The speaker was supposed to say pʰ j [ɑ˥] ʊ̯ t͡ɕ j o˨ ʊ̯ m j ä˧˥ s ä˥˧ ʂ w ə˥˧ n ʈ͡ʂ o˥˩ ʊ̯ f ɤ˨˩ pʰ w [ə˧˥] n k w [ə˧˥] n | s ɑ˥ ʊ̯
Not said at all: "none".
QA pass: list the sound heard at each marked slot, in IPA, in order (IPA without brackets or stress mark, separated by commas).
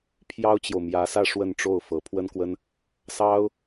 ɑ˥, ə˥, ə˥